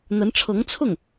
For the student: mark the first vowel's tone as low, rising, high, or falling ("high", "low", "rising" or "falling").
rising